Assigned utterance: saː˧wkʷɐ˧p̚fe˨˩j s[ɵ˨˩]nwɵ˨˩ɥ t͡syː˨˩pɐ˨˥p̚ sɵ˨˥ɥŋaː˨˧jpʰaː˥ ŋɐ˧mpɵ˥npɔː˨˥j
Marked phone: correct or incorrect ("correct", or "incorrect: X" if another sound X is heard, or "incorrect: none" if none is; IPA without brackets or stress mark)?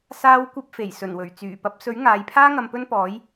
correct